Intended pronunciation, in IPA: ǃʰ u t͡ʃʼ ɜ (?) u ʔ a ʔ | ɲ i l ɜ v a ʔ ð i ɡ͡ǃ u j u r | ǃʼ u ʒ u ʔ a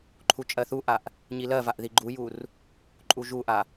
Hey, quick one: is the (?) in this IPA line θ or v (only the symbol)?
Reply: θ